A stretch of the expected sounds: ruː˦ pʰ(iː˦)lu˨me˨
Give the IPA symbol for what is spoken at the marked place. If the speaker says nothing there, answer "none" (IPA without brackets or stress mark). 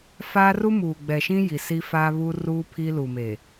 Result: i˦